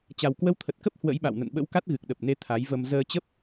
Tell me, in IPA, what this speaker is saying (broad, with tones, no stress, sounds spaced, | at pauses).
t͡ɕ a˨˩ w k w ə˧ w t̪ʰ ə˨˩ t̚ k ə˦˥ p̚ h w ə̰˧˥ j ɓ a̰˧˨ w n ə̰˧˨ n ɓ ə̰˧˥ w k a˦˥ t̚ ɣ ɨ˨˩ k̚ ɗ ə˨˩ p̚ n e˧ t̪ʰ a˨˦ j v ə˧ m z əː˧ t͡ɕ ə˦˥ p̚